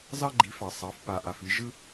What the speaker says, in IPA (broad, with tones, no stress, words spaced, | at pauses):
zɑ˥ɡ͡ǃi˩˥fɑ˩ sˤɑ˩˥f pa˩ʔa˩fi˧ ʒɯ˥